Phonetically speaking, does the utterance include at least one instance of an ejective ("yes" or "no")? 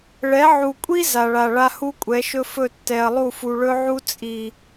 yes